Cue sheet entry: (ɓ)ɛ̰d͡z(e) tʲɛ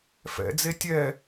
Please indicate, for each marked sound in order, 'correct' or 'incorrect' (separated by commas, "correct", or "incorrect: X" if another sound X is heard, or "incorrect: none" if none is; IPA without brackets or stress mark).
incorrect: f, correct